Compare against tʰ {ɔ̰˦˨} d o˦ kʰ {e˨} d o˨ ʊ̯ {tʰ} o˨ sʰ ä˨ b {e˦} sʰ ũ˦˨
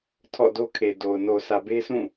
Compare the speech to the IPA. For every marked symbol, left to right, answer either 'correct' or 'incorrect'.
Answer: correct, correct, incorrect: n, correct

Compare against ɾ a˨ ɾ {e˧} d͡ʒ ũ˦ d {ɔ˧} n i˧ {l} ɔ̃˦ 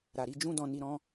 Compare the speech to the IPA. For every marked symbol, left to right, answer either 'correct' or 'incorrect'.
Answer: incorrect: i˧, incorrect: ɔ̃˧, incorrect: ɾ

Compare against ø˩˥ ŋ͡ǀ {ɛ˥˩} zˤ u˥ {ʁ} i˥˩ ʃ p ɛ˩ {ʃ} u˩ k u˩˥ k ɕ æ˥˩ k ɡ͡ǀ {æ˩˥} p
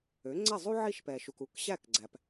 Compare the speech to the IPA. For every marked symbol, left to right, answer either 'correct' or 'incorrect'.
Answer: correct, incorrect: ʕ, correct, incorrect: æ˩

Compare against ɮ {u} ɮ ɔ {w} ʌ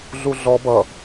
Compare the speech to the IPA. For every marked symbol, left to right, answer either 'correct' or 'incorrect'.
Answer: correct, incorrect: b

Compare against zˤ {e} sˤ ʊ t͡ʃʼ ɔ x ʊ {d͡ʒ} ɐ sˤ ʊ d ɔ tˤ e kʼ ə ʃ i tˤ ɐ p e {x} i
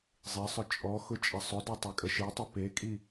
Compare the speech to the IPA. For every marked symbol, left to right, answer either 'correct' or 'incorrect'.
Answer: incorrect: i, incorrect: t͡ʃʼ, incorrect: kʼ

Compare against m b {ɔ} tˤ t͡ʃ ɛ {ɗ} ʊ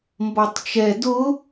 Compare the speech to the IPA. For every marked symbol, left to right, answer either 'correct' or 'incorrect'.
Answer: correct, incorrect: d

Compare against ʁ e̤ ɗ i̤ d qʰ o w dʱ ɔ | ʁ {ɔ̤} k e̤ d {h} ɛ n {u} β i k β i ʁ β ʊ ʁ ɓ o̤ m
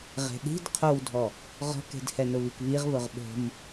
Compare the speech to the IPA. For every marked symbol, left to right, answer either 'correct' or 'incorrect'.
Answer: correct, correct, incorrect: ʊ

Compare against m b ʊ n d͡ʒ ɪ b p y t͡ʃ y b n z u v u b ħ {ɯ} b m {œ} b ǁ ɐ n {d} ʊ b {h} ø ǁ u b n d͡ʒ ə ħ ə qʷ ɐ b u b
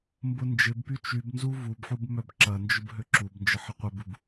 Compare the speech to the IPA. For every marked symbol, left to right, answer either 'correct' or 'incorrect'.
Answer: incorrect: u, correct, incorrect: d͡ʒ, incorrect: ɦ

